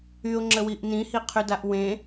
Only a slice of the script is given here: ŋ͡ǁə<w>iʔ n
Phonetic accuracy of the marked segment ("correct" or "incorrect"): correct